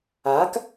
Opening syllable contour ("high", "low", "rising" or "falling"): rising